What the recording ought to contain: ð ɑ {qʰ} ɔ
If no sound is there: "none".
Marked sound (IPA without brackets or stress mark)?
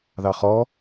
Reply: χ